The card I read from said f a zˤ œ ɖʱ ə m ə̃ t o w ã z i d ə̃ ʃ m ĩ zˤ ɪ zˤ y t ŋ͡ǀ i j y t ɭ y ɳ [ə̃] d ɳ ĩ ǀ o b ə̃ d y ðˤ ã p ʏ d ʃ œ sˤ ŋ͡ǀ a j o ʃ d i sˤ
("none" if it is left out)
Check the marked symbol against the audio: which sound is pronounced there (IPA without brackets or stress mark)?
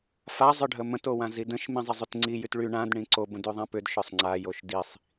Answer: ã